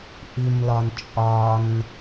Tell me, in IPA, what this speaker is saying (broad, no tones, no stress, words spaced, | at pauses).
ʔimlɒn t͡ʃʼɒn